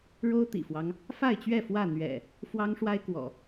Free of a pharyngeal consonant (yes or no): yes